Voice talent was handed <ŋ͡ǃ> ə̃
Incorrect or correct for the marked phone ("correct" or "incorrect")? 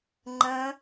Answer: correct